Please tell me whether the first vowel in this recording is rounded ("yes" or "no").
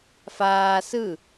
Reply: no